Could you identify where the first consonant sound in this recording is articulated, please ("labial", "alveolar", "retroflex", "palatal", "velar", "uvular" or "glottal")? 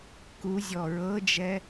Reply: velar